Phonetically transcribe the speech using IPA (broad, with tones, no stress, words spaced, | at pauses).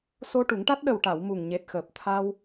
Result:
so˧ʈu˨˩˦ŋʈa˦˥t̚ ɗə˨˩wʈa˨˩˨w mu˨˩ŋɲe˨˩t̚xəː˨˩p̚ t̪ʰa˧w